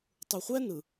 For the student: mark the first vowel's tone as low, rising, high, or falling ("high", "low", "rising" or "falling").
low